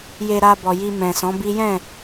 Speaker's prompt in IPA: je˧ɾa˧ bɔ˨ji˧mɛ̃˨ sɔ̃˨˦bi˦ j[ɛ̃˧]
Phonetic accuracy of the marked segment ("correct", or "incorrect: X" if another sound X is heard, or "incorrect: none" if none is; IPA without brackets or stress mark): incorrect: ɛ̃˦˨